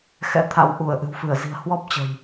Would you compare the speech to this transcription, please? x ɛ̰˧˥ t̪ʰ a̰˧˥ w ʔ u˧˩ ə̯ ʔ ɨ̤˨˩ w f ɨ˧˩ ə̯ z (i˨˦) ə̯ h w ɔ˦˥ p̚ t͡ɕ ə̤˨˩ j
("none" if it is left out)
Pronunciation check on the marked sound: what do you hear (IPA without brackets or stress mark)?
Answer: i̤˨˩